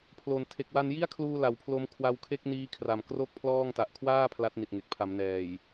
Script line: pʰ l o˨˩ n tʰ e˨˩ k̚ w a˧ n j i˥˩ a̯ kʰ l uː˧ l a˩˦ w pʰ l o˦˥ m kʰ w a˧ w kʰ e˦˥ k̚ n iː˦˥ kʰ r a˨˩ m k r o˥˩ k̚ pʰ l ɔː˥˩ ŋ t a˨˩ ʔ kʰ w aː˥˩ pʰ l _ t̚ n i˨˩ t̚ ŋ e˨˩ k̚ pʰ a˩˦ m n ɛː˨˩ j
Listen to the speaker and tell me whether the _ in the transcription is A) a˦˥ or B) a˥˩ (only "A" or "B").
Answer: A